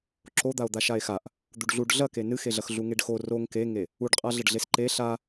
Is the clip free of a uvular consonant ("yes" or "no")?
no